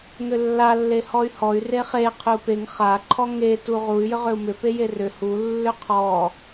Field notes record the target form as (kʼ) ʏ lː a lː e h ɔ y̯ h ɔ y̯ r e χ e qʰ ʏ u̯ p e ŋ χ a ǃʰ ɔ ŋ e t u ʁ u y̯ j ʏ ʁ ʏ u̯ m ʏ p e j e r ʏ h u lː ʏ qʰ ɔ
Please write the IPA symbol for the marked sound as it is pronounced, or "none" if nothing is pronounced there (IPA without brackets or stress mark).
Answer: ŋ